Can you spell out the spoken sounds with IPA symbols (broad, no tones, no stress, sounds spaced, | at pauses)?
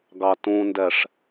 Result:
ɡ ɑ t ũ n d ɛ ʂ